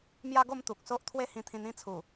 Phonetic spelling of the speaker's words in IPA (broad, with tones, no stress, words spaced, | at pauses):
mja˦ɡo˥˧m t̪u˨k̚so˦ʔ t̪ʰwe˦hĩ˧t̪ʰĩ˧n ĩ˥˧t͡sʰu˨˩